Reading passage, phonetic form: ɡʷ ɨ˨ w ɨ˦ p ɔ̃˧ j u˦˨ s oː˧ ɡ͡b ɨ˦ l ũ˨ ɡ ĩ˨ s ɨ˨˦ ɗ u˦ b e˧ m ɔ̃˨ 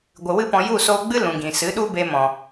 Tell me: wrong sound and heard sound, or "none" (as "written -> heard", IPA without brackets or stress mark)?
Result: none